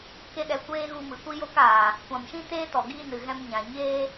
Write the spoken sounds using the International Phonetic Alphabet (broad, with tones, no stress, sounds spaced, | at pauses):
k e˦ ɗ ɛ˧ kʷ eː˦ ɣ u˧ m ɨ˨ kʷ i˦ j o˦ k aː˨ | kʷ ã˨ m ʃ ĩ˦ t eː˦ t ɔ˨ ɡ iː˦ n ɨ˨ ɣ ɛ̃˦ m ɲ ã˨ ɲ eː˦